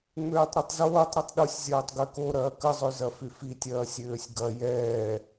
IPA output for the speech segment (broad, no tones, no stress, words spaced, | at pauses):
ŋ͡møːtˤɾɛtˤzoːtˤ ɾitˤɗosʲ zʲɐːtˤɡøko ɾɐːkəzˤø zɐfyfitʲɐː sʲøːsʲɡɐ jɛː